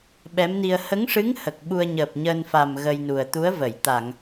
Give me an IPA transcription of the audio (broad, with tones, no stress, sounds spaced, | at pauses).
ɓ ɛ˧˥ m n i˧ ə̯ h ə˧˥ ŋ ʂ ɨ˧˥ ŋ h ə˨˩ k̚ ɓ u˧ ə̯ ɲ əː˨˩ p̚ ɲ əː˧ n f a˨˩ m ɣ ə˧ j n u˨˩ ə̯ t̪ u˧˥ ə̯ v ə˨˩˨ j t̪ a˨˩˨ ŋ